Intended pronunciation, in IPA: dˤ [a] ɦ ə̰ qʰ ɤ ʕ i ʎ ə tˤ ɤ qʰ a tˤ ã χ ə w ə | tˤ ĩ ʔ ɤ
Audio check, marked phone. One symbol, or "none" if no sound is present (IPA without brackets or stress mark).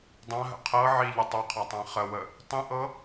ã